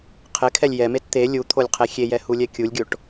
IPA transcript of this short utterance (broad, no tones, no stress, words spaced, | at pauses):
qʰɪkʰɛlʲ jɛmet t̪e lʲut̪ʰolʲqʰe xʲejɛhulʲɛ kʲulʲɡʲoʈ